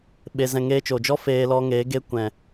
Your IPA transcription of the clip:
ɓe˧zɛ̃˧ ŋeː˧t͡ʃo˨d͡ʒɔ˦ feː˧lɔ˧ŋeː˨˦ ɡe˧kʷɛ̃˨

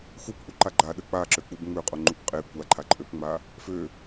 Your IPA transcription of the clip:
xupʔuǃa ɡ͡ǃaɗə k͡paǁøk͡pub ŋ͡møqʼoŋ͡ǃup qʼe kʷaǃʰaǃʼøpŋ͡ma | fø

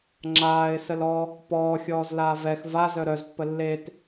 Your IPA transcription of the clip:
ŋ͡ǁaːɪ̯səlɔ | pɔːxʲɔːzlaː vɛx vazœ ɾœzpːə lːet

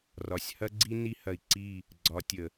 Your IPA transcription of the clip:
rɒ˨sʲhɐ˦ɡ͡ǀi˦ ni˦hɐ˨i̯ǀi˦˨ | ɡ͡ǀɒ˨˦ tʲə˨

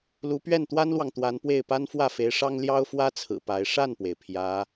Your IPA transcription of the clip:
lu˧˥pɥɛ˥˩nt̪wa˥nlwɑ˨ŋ t̪wa˧˥npwe˥˩ɪ̯ pa˥nfwä˥˩fe˧˥ɪ̯ʂɑ˥ŋ ljɑ˥ʊ̯fwä˥t͡sʰɹ̩˨˩ pa˧˥ɪ̯ ʂa˥˩npwe˩ɪ̯ pʰjä˧˥

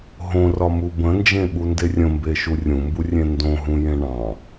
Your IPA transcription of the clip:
ɦõrɒmu bə̃nd͡ʒẽɓunde rʲə̃mbeʃu rʲũmburʲẽ ndõɦũjẽ ɳɑ̃

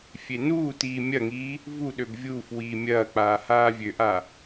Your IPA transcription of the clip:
fʲenuːtiː mʲɐŋiː | vuɗøb vʲuːf wiːmʲɐːk͡paː haːvʲøʔa

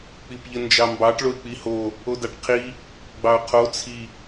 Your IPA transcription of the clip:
k͡pipʎənd͡ʒɑmbɑʈ ɭoɪ̯k͡piho | odɑʈqʰi | ɡ͡bɑʊ̯qʰo t͡sʰi

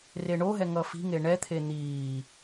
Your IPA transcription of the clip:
reɳoɦɛ ŋʌfi̤ŋe ɳɛt̪ʰe n̪iː

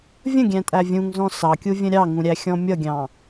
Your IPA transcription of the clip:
vʲə̃ɡʲæ̃tʼæ vʲũŋzɔ̃ sɑkʲuvʲə̃ ɾʲɑŋũɾʲæxʲɔ̃ mʲʌɡʲɑ̃

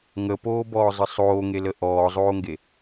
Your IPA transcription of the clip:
ŋəpoːbɔːzˤə sˤoːŋelə ʔɔːzˤoːŋɡe

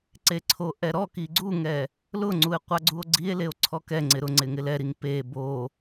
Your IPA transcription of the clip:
ǀeǀʰoʔɛɾɔ kiɡ͡ǀuŋɛ | lʊŋ͡ǀue̯ qʷaɡ͡ǀuo̯ɡ͡ǀie̯ leo̯ǀʰɔkɛŋ͡ǀɪ ɾʊŋ͡ǀɪ ŋɪlɛɾiŋ pe bo

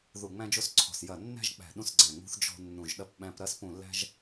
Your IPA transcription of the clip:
ðu˧˩ŋ͡mæ̃˦d͡ʒo˦sǀʰɔ̤˧˩s jɐ˧˩nːæ̤˦ʒ k͡pæ̤˧˩ɗũ˦sɡ͡ǀæ̃˧˩ŋ͡mṳ˦θ d͡ʒɔ̤˦nːũ˧˩ʒɗɐ˦pɓæ̃˦p ɾɐ˦spũ˧˩lːæ̤˦ʒ

